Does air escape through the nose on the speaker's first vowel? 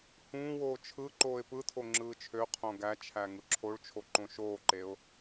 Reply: yes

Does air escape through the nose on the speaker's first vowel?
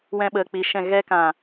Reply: yes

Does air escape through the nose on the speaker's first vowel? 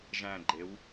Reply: yes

